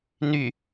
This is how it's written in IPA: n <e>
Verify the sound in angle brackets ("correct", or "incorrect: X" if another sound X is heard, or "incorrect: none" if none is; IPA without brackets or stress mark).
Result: incorrect: y